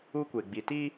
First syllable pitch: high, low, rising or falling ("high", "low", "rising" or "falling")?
high